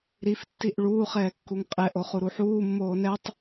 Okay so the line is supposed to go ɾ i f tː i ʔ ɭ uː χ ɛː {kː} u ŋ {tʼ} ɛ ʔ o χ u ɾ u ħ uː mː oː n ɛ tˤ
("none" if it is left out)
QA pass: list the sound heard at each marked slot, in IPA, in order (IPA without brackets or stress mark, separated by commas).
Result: kː, qʼ